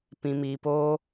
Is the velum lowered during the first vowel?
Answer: yes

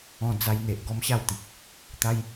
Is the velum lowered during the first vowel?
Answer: yes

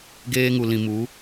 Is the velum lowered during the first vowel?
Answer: no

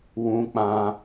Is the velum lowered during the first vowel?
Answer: yes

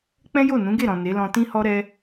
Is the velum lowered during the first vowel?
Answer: yes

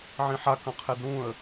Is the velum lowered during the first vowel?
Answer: yes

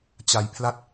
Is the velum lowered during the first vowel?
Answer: no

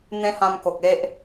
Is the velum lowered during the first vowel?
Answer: yes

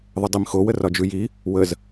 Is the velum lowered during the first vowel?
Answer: no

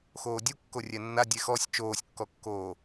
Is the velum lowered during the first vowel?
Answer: no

